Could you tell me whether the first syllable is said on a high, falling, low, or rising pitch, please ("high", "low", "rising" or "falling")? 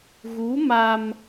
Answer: rising